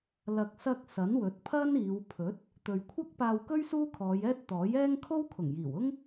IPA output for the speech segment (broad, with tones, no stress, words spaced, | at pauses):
lɐ˨k̚sɐ˧k̚ sɐ˨˥nwɵ˨˥t̚pʰɐ˥niː˨˧w pʰɵ˨˥t̚ | t̪ɵ˨ɥkʷʰɐ˥k̚ paː˧wkɵ˥ɥ suː˥kʰɔː˨˧jɛː˥t̚ t̪ɔː˨˥jɛː˥ŋ kʰo˥wkʰʊ˨˩ŋjiː˨˩wʊ˥ŋ